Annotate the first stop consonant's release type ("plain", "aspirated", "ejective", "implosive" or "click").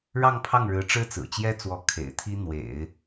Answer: aspirated